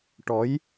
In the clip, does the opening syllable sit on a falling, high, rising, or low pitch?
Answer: rising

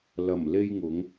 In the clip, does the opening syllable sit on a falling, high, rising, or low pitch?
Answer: low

